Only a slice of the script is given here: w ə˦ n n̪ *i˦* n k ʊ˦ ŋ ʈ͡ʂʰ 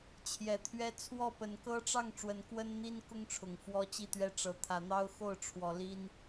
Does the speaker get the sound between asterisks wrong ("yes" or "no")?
no